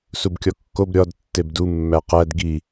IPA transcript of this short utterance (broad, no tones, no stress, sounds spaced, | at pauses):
s u b kʲ ɒ kː o b ɾʲ ɒ d tː e b d u mː æ q æ d ɡ i